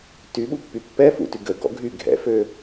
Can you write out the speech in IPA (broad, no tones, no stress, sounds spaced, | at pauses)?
t y ɓ u pː y pː ɛ f ṵ t y ɡ ə ɡ ɔ̰ ɡʱ y ɡʱ ɛ̰ f ø